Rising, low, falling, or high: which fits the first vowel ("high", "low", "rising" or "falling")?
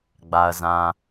low